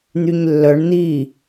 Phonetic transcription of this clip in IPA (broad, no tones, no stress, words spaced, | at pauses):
n̪yɲlːœɳ n̪i